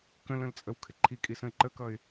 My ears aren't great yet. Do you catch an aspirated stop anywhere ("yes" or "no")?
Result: yes